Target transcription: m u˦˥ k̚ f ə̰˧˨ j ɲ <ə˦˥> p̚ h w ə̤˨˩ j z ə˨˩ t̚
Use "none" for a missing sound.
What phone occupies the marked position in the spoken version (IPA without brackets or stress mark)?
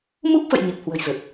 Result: ə˨˩